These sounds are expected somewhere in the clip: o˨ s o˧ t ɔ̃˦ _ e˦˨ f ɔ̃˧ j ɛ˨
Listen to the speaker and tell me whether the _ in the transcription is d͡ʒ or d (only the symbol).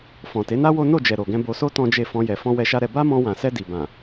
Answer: d͡ʒ